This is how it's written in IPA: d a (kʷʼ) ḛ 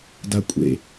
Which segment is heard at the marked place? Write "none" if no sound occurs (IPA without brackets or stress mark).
kʷʼ